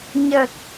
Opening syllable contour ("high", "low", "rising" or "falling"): low